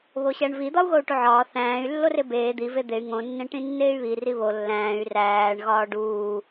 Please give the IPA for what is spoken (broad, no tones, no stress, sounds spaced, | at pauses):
β o ɕ æ ɳ v i d̪ ɒ u̯ ɣ o u̯ ʈ u ʕ ɒː θ æ̃ː y̯ lː o r e b eː d̪ i v e d̪ e y̯ ŋ õ nː ẽ ʈ ĩ nː eː y̯ β i r i β o lː æ̃ː y̯ r æː ɳ ɣ ɒː ɖ uː